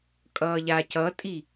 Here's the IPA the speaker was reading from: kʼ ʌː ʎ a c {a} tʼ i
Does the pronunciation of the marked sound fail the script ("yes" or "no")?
yes